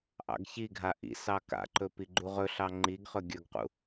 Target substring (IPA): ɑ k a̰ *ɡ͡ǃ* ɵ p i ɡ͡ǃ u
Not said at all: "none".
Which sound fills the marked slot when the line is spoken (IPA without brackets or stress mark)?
ǃ